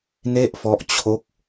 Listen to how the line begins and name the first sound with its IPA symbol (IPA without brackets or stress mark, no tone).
n